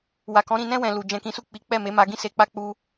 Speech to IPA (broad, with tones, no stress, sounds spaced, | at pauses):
w a˨ k ɔ̃˨˦ ɾ ĩ˧ n ɛ̃˦ w ɛ̃˧ l u˨ d͡ʒ ɛ̃˨ k ĩ˨˦ s u˦˨ k͡p i˨˦ k͡p ɛ˦˨ m e˨˦ m a˧ ɡ ĩ˦ s e˧ k͡p a˦ k͡p u˧